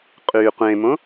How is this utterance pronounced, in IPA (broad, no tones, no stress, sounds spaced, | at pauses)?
qʼ y qʷ ẽ m õ